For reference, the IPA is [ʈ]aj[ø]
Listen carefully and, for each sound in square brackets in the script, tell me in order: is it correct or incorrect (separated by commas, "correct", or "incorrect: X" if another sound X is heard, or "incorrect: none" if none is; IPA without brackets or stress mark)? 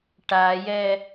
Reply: correct, incorrect: ɛ